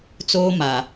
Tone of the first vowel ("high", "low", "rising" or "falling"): high